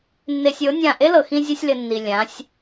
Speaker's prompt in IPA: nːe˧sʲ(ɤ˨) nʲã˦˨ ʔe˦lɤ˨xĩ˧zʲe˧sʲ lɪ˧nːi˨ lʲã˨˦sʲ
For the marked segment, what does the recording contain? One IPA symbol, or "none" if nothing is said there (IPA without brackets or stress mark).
ɤ˨˦